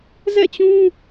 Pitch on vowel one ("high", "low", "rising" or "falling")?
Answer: falling